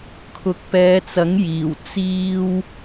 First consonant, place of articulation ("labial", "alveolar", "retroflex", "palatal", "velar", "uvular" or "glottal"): velar